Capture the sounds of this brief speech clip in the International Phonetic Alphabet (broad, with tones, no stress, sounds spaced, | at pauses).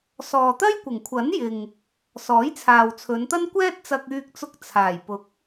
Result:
s ɔː˨ t̪ ɐ˥ j kʷ ɪ˨˩ ŋ kʷʰ ɐ˨˥ n j ɪ˨ ŋ | s ɔː˨˥ j t͡sʰ aː˨ w t͡sʰ ɵ˨˧ n t̪ ɐ˥ n kʷ ɛː˥ t̚ t͡s ɐ˧ k̚ yː˧ k̚ t͡s ʊ˧ k̚ t͡sʰ aː˨˩ j p ʊ˨˥ k̚